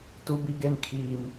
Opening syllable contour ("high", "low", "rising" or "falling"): high